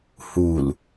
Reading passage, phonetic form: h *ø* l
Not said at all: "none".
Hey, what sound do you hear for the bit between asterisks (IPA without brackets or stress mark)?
u